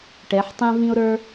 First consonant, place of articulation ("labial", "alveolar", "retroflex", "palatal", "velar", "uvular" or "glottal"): retroflex